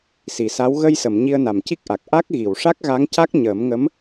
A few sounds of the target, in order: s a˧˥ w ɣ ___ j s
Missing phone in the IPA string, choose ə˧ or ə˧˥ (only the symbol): ə˧